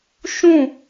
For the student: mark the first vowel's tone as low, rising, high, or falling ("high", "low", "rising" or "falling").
falling